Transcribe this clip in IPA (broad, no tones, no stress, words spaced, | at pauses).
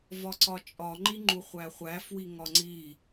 vɒǀɒt͡ʃʼɒ ŋ͡ǃiŋ͡ǃuχʷæχʷæ fwiŋɒŋ͡ǀi